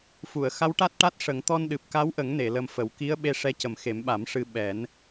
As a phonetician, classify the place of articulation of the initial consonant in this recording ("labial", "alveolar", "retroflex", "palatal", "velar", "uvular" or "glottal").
labial